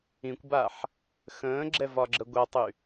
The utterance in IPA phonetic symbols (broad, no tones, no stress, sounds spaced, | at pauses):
ĩ kʷ b a ħ | x ə̃ː ɡ͡ǁ ɛ v ɒ ɡ͡ǁ ə ɡʷ a tˤ y